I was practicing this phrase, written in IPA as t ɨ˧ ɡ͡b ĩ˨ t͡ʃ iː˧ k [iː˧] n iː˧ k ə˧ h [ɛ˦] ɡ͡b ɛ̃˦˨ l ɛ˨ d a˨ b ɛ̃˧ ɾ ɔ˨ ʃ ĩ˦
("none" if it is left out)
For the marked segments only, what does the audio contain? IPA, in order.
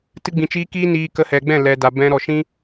iː˦, ɛ˨

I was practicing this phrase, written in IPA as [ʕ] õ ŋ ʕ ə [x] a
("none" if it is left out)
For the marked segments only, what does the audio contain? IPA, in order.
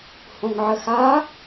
h, x

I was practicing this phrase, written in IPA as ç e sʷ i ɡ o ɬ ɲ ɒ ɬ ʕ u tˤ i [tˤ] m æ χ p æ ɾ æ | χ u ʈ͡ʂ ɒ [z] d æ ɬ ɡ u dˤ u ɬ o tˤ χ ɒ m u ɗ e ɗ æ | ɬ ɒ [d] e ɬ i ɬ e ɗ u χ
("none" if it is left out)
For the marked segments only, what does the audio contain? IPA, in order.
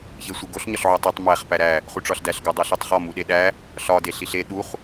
tˤ, ɬ, d

